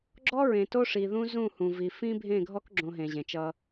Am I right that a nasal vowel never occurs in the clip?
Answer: no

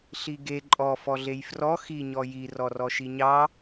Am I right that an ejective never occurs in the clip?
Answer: no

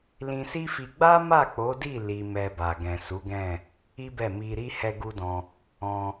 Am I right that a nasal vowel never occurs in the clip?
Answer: no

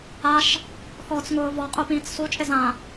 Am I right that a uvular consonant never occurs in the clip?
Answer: no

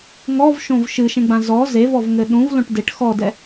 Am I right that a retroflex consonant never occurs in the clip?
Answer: no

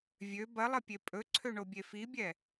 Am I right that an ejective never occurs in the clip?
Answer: no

